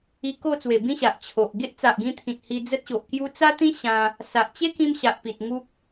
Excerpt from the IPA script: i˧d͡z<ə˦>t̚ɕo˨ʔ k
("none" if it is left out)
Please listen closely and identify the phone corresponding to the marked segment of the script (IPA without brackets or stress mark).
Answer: ə˦